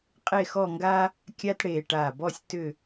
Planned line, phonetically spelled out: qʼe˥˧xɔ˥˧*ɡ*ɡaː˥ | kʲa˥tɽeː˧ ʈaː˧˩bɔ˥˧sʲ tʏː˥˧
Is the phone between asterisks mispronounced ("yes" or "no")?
yes